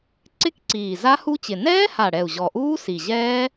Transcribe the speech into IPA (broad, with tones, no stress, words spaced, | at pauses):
ǀɪ˦˥kǀiː˨˩ za˦˥hu˦˥t͡ɕɪ˨˩ nɛː˦˥ha˨˩ɽɛ˨˩u̯ ʑɔ˨˩ʔuː˦˥ si˨˩ʑɛː˦˥